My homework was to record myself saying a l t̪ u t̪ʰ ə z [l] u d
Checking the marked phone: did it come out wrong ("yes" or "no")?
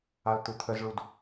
yes